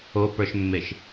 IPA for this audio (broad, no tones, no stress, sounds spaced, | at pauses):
o p ə˞ ʃ mː e ʃ